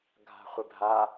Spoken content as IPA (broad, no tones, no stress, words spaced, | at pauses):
ɡʱa̤χʷɪbʱa